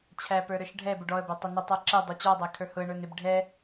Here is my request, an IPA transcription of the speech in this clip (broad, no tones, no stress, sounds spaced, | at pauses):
t͡ɕʰ æ p ə˞ ɾ ə˞ ʃ ɖʱ ɛ b ʊ ɖ ɔ ə̯ b æ tˤ ʊ n ʊ tˤ ə˞ ǁ ɛ dˤ ʊ t͡ɕ ɔ dˤ æ kʰ ə˞ h ʊ ə̯ ɳ ə˞ n ɪ b ɖʱ ɛ